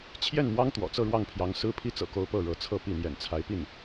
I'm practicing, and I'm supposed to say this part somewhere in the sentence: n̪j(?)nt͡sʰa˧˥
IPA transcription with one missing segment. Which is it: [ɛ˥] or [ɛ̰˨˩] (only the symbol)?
ɛ̰˨˩